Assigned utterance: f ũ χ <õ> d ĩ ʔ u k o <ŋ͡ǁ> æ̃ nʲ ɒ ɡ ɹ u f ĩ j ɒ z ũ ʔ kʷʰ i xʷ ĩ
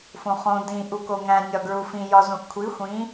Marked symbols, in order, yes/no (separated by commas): yes, no